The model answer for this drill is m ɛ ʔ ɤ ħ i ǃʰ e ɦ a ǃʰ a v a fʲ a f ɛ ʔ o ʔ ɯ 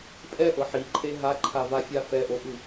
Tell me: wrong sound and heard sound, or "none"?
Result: m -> pʼ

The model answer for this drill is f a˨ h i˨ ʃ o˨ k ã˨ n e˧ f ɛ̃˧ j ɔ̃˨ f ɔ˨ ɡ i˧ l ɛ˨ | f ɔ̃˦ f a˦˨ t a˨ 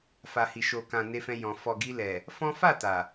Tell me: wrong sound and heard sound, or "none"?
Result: none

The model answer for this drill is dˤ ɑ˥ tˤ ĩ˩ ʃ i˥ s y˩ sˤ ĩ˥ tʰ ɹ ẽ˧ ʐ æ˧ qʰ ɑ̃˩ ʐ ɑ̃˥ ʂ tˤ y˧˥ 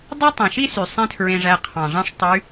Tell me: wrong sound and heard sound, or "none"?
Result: none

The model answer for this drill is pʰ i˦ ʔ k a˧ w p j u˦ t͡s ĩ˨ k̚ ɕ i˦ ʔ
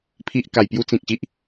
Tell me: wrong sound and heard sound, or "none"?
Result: w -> j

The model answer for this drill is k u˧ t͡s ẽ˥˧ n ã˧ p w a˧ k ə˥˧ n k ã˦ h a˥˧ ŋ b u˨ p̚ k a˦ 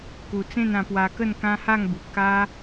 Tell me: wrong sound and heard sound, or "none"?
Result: none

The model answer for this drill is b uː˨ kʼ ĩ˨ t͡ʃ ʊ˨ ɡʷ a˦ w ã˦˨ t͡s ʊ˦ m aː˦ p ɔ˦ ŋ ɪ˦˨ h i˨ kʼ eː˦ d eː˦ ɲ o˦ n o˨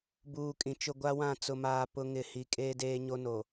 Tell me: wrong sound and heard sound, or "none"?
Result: ɔ˦ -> ʊ˦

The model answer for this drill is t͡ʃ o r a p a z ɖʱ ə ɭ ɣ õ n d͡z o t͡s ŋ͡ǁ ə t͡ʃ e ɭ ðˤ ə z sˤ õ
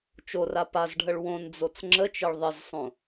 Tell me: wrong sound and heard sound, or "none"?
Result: ɣ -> w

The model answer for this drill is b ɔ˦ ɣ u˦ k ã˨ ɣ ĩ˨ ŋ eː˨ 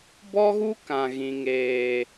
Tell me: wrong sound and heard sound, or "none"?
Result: none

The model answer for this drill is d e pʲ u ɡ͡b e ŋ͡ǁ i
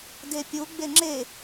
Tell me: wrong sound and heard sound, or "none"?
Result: i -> e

